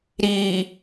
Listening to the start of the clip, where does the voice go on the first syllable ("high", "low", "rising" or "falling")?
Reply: low